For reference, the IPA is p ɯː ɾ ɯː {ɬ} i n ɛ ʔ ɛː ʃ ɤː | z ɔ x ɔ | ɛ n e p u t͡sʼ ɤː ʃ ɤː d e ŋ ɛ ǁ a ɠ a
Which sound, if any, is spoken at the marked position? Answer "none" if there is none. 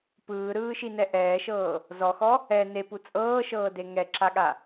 ʃ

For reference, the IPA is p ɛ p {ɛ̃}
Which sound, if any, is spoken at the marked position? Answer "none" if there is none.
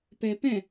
ɛ̃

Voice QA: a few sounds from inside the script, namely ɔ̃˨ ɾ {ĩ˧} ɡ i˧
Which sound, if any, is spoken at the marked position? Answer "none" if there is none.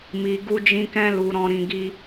ĩ˨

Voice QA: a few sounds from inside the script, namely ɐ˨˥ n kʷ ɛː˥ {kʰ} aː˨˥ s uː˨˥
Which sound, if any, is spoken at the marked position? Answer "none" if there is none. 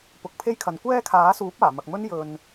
kʰ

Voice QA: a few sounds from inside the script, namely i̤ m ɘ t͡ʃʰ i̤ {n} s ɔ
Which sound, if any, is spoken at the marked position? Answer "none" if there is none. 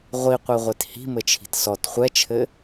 t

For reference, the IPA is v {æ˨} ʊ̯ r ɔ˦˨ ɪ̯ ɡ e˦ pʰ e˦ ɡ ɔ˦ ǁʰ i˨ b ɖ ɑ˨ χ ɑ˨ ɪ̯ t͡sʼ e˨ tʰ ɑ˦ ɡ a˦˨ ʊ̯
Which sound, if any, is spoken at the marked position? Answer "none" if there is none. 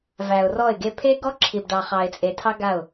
æ˨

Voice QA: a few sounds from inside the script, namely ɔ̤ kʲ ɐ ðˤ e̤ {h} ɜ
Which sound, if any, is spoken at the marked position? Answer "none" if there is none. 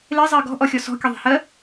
h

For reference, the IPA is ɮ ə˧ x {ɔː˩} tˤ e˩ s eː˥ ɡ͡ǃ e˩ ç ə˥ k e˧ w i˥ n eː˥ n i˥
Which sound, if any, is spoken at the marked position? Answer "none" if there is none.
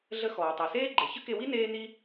ɔː˩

